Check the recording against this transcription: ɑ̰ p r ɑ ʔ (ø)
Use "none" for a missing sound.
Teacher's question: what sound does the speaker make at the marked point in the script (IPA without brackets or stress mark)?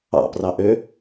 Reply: ø